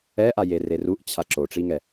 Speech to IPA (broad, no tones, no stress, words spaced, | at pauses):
ɛʔajere ruʔt͡ɕʰa ǁoʈ͡ʂiŋɛ